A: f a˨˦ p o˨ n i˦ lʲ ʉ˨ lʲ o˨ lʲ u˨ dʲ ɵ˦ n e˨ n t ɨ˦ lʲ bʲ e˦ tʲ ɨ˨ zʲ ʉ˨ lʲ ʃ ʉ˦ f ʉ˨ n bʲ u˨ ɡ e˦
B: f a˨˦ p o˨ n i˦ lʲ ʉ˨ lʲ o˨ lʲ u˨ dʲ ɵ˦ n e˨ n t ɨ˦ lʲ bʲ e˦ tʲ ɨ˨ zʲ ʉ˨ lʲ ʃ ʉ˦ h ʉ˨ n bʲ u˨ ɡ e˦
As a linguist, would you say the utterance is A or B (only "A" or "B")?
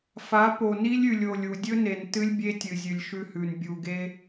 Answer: B